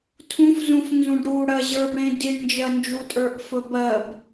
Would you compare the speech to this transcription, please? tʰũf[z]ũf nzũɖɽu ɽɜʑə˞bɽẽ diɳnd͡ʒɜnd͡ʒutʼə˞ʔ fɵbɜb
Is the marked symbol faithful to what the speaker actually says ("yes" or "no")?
yes